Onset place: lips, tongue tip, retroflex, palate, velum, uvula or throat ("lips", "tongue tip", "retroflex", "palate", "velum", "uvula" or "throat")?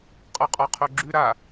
uvula